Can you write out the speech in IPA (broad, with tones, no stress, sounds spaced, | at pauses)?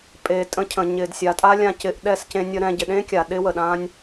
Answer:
pʼ eː˨ tʼ ə̃˧ cʰ ə̃˨ ɲ ɪː˨ d sʲ a˨ tʼ a˦ lʲ ã˧ c ɪ˧ ʔ ɗ ɛ˦˨ s c ẽ˧ nʲ ə˧ ɾ ɛ̃˧ ɟ ɪ˨ ɗ ẽ˦ kʲ a˨ ɗ ɪː˦ w ə˨ ɗ ãː˦ nʲ